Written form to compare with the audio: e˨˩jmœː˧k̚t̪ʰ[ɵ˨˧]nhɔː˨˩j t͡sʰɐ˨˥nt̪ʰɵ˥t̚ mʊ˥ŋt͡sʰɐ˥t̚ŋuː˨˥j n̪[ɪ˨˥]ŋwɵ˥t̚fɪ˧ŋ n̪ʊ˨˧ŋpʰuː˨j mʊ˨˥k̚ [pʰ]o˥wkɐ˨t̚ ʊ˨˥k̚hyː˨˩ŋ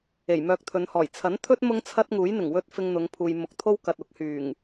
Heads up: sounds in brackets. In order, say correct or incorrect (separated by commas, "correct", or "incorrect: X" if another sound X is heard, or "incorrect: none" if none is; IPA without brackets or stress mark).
correct, incorrect: ɪ˨˩, incorrect: t̪ʰ